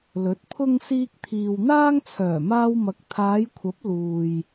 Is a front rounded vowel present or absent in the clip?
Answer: present